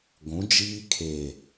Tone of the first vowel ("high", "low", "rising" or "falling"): rising